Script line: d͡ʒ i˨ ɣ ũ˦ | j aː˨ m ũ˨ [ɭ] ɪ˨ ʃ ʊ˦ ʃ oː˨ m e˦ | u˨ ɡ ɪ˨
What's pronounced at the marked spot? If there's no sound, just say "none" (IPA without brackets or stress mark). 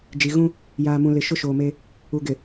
l